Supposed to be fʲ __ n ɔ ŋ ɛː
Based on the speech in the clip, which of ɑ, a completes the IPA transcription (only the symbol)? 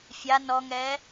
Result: a